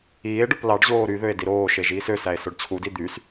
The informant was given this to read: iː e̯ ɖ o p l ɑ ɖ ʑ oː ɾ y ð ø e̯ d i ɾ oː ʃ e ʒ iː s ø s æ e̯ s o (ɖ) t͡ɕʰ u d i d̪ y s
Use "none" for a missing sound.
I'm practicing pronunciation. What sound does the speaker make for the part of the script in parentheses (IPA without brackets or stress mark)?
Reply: ɖ